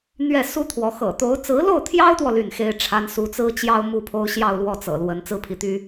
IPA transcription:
n̪ ɥ ɛ˥˩ s u˥ t̪ʰ w ɔ˧˥ x ɤ̰˨˩ t̪ o˧˥ ʊ̯ t͡s ɹ̩˧˥ l o˥˩ ʊ̯ t̪ʰ j ɑ˥ ʊ̯ t̪ w ɔ˨ l y˥˩ n x e˥ ɪ̯ ʈ͡ʂʰ a˥ n s u˧˥ t͡s ɹ̩˥ t͡ɕ j ɑ˥ ʊ̯ m u˥˩ pʰ o˥ ʊ̯ ɕ j ɑ˥˧ ʊ̯ l w ɔ˥˩ t͡s ɤ̰˨˩ l w ə˧˥ n t͡s ɹ̩˥ pʰ i˧˥ t̪ y˥

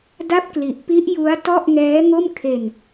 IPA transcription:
d a˥˩ p̚ k l i˨˩ ʔ p i˦˥ ʔ j u˦˥ a̯ t ɔ˥˩ ʔ ŋ ɛː˦˥ ŋ o˥˩ m kʰ e˧ n

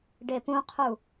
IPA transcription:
ɖ e p ũ qʰ u

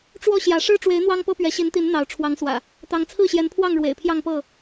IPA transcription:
ʈ͡ʂ w ɔ˥˨ ɕ j ä˨˦ ʂ ɻ̩˦ ʈ͡ʂ w e˨˦ ɪ̯ n̪ w ɑ˦ ŋ p ɤ˦ p ɥ ɛ˨˦ ɕ i˨˦ n t̪ i˨˦ n n̪ ɑ˨˦ ʊ̯ ʈ͡ʂʰ w ɑ˨˦ ŋ s w ä̰˨˩ | t̪ ɑ˨˦ ŋ t͡sʰ ɹ̩˥˨ ɕ j ɛ˨˦ n pʰ w ɑ˥˨ ŋ ɻ w ḛ˨˩ ɪ̯ pʰ j ɑ˥˨ ŋ p ɤ˥˨

